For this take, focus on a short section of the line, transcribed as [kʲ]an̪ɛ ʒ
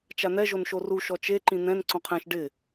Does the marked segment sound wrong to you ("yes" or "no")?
yes